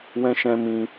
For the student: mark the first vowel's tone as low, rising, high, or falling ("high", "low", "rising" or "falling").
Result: high